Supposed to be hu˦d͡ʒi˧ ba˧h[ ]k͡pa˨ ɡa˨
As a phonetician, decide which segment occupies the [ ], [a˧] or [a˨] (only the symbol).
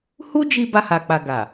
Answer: a˨